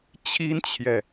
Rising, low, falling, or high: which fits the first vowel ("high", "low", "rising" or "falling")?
high